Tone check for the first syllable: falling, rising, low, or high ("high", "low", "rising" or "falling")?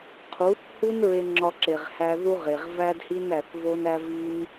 rising